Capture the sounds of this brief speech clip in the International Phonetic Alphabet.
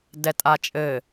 d ɛ tʼ a t͡ʃʼ ɘ

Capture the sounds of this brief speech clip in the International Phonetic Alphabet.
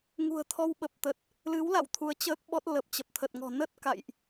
ŋ ṳ˨˩ ə̯ t̪ʰ ɔ˧ w ɓ ə˨˩ p̚ t̪ ə˨˩ t̚ | l ɨ˨˦ w l a̰˧˨ w t̪ʰ u˨˦ ə̯ t͡ɕ əː˦˥ k̚ ɓ ɔ˦˥ t̚ l ə˨˩ p̚ t͡ɕ ə˨˩ p̚ t̪ʰ ə˨˩ t̚ ŋ ɔ̤˨˩ n ə˦˥ t̚ k a̰˧˨ j ʔ

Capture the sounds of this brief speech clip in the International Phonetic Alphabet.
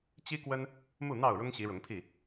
t͡ɕ i˦ k w ə˦ n | m u˥˨ n̪ ɑ˥˨ ʊ̯ ɻ ʊ˦ ŋ ɕ i˨˦ ɻ ʊ˨˦ ŋ pʰ i˥˨

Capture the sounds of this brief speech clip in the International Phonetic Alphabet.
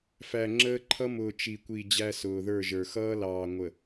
f æ˨ ŋ͡ǁ əː˦ ǃʰ ʌ˦ m ʊː˨ t͡ʃ i˨ kʷ i˨ d͡ʑ æ˦ s ʊː˨ ð ə˞˦˨ ʒ ə˞˨ x ʌː˦ l ɑː˨ ŋʷ ə˨

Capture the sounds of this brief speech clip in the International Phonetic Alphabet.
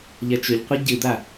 ʎ ɐ t͡ʃ ɵ ʎ qʷ ɨ ɟ ɨ d̪ a

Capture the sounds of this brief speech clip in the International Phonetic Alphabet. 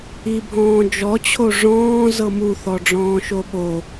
i bʱ ɔ̃ː d͡ʒ ɔ t͡ɕʰ o ʐ ɔ̃ː z ɤ m u θ ɔ ɖ͡ʐ ɔ̃ː ʃ o ɓ o

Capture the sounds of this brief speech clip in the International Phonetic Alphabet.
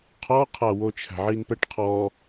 qʰ ɔ qʰ a w o t͡ʃʰ æ̤ ʕ i n p ɛ ʈ qʰ ɔ

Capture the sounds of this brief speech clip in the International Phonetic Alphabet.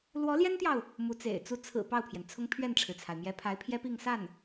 l w ɔ˧˥ l j ɛ˥ n t̪ j ɑ˨ ʊ̯ | m u˧˥ t͡s ḛ˨˩ ɪ̯ t͡s u˥ t͡sʰ ɹ̩˨˩ p ɑ˥˩ ʊ̯ pʰ j ɛ˩ n t͡sʰ ʊ˥ ŋ pʰ ɥ ɛ˥˩ n ʈ͡ʂʰ ɻ̩˩ t͡sʰ a˩ ɪ̯ m j ɛ˧˥ pʰ a˧˥ ɪ̯ pʰ j ɛ˥ p i˥˧ ŋ s a˥˩ n

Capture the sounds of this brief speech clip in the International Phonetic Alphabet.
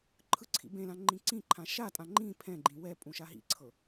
ǃʰ ɯ ǀʰ ḭ b ẽ l ã ŋ͡ǃ ĩ ǀ ĩ ǃʰ ã ʃ a tʼ ã ŋ͡ǃ ĩ pʰ ɛ̃ ɡ͡ǃ ĩ w ɛ pʼ ũ ʃ a ɦ ḭ ǀʰ ɤ

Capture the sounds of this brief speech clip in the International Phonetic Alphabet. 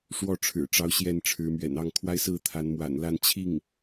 ʂ w ɔ˥˩ ʈ͡ʂʰ ɻ̩˨˩ ʈ͡ʂ ɑ˧˥ ʊ̯ ɕ j ɛ˥˩ n ʈ͡ʂʰ ɻ̩˧˥ m ɥ ɛ̰˨˩ n ɑ˥˩ ŋ kʰ w a˥ ɪ̯ s ɹ̩˥˩ t̪ʰ a˧˥ n m w a̰˨˩ n l a˥˧ n t͡ɕʰ i˥˩ ŋ

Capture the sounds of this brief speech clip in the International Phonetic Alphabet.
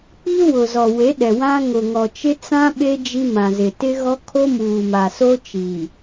k͡p i˦ w ʊ˨ z ɔ˨ w e˨˦ ɗ ɛ˨ w ã˦ ŋ ʊ˨ ŋ ɔ˨ t͡ʃ ɪ˦ t͡s ã˦ ɓ e˦ d͡ʒ i˦ m ã˨ z ɪ˨ t ɪ˦ ɣ ɔ˦ kʰ o˦ m uː˨ m a˨ s o˦ t͡ʃ i˨

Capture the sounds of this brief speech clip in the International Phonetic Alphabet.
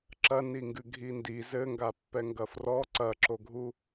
ǁ ɐ n i ŋ ɡ ɨ ɡʱ i n d i z ɘ ŋ ɡ a pː ɛ ŋ ɡ ɐ f r ɔ ǀ ɐ ǁ o ɡʱ u

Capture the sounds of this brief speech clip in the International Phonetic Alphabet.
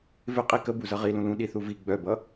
v ɪ qʼ i k ə b u z ʌ ʁ i l ũ l ũ ɗ i θ u v i ɡ͡b œ b ʌ

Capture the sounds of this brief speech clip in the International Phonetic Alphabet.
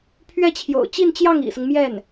pʰ ɥ ɛ˥˩ t͡ɕʰ j o̰˨˩ ʊ̯ t͡ɕ i˥˧ n t͡ɕ j ɑ˥˩ ŋ ḭ˨˩ s ʊ˦ ŋ m j ɛ˥˩ n

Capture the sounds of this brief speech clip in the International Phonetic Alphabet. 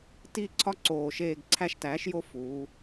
t i˦˨ ǀʰ ɒ˥ ǀ oː˨˩ ʃ eː˦˨ ɡ ǀʰ æ˦˨ ʃ t æː˩˥ ʃ j o˥ f uː˩˧

